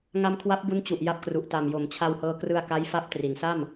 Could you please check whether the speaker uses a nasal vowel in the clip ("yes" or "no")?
no